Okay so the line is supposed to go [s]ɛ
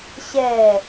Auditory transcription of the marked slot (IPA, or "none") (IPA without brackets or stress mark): ɕ